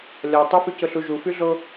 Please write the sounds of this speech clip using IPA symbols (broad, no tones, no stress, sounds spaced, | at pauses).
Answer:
lʲ ɒ tˤ ʊ f y c ʊ ɬ u ʒ u f y ɮ o